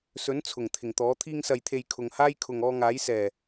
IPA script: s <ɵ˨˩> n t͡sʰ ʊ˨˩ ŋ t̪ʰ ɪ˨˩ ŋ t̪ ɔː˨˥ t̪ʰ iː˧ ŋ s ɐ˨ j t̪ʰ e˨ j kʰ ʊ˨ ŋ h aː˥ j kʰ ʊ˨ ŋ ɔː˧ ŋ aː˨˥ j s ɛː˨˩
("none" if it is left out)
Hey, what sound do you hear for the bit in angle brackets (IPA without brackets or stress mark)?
ɵ˨˥